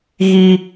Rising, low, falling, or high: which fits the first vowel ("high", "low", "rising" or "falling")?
high